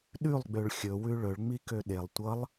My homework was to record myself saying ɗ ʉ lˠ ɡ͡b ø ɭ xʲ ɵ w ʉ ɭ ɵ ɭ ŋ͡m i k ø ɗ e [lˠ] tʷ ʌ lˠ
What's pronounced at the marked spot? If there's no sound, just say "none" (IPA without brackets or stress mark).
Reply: lˠ